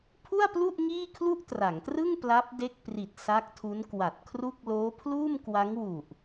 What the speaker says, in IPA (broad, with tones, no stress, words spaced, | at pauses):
pʰu˥˩a̯plu˥˩ʔ ŋiː˥˩kʰlu˥˩ʔtra˩˦ŋtrɯ˥˩ŋ pla˦˥p̚ de˦˥k̚pri˨˩t̚ sa˦˥k̚tʰu˦˥nkwa˨˩t̚kʰru˥˩k̚ loː˦˥pʰluː˥˩mkwa˦˥ŋ wu˨˩ʔ